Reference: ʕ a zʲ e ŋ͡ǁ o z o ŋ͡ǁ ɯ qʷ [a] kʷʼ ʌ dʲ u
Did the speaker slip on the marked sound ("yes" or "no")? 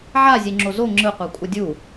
no